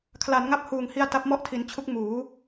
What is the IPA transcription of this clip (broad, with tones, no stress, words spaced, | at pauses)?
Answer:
kʰla˩˦nŋa˦˥p̚huː˨˩ŋhi˧a̯ ta˦˥p̚mɔ˥˩ʔtʰi˩˦nt͡ɕʰu˦˥k̚ muː˩˦